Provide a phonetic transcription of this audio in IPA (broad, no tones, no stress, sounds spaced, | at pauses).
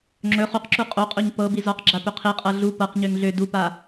ŋ͡ǁ ɵ χ u q ǁ u qʼ o qʼ o ɲ p ɤ b i z ɔ q ɡ͡ǁ a p ɵ qʰ i qʼ ɤ ɮ u p ɤ q ɲ ø ŋ ɮ ø d u p a